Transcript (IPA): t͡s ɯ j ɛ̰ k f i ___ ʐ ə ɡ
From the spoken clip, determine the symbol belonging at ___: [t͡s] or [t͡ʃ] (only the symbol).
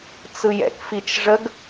t͡ʃ